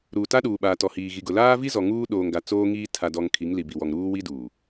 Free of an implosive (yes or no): no